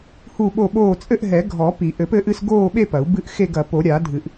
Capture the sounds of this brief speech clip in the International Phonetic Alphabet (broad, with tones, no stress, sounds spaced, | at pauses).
h u˥˧ ɓ o˥˧ ɓ oː˥˧ t͡sʼ ɘ˥˧ ʔ ɦ ɛ˨˩˦ ɡʱ ɔ˨˩˦ p i˨˩˦ ʔ ɘ˨˩˦ p ɘ˥˧ ʔ ɨ˥˧ s ɡ oː˥˧ ɓ e˥˧ p ɐ˨˩˦ u̯ b ɨ˥˧ ʔ x e˥˧ ɡ ɐ˨˩˦ p o˨˩˦ ɾʲ aː˨˩˦ dʱ ɨ˨˩˦ ʔ